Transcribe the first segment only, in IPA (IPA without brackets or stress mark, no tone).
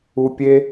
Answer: u